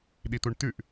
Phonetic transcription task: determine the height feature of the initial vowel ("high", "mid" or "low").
high